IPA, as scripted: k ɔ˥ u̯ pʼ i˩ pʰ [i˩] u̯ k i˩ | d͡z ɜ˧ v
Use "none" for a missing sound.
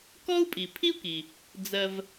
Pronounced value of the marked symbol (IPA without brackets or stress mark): i˥